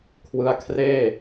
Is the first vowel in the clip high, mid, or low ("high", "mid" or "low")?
high